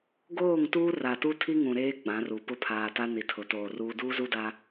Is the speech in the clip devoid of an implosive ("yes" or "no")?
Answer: yes